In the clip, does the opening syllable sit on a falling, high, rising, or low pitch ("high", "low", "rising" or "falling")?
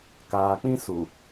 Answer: low